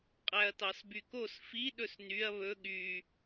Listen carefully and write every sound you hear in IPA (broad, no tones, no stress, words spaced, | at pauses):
qʼæɐ̯tɑsbykos fi ɗɵsnyɐ̯ βɵ ɠy